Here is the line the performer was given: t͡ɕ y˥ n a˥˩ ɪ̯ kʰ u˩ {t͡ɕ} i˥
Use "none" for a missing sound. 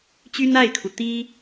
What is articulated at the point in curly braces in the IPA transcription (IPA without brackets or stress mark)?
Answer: t̪